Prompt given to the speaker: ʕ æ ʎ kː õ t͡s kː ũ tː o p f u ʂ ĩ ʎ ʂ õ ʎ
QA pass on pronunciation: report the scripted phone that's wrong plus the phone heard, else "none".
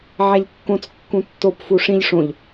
none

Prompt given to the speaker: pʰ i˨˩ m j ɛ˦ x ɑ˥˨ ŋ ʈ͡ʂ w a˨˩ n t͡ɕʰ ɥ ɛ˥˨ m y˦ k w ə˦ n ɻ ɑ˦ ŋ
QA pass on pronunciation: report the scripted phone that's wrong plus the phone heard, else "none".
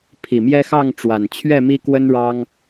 y˦ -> i˦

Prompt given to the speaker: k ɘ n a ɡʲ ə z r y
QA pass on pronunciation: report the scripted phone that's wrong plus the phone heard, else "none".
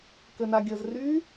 none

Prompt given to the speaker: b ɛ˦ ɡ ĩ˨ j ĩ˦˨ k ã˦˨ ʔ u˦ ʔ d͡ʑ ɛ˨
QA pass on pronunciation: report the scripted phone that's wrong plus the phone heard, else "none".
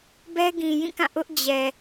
u˦ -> ʊ˦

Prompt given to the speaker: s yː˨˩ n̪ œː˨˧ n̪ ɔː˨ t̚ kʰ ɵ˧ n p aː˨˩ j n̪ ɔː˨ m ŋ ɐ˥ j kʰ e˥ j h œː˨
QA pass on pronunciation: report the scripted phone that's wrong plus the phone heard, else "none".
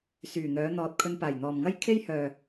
none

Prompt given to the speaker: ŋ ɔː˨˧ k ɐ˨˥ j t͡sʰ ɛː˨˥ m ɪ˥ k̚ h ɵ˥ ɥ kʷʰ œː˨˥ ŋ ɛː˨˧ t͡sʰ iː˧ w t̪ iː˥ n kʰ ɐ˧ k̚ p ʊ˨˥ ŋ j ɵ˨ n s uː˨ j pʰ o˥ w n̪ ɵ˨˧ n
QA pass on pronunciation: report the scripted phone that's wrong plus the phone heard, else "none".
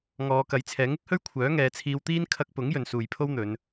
m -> ŋ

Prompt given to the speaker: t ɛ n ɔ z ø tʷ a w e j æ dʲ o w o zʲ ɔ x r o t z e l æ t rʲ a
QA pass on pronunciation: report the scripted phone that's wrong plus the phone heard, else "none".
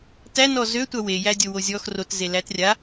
ɛ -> æ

